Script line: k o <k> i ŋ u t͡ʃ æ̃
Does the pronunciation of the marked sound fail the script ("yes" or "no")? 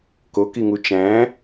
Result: no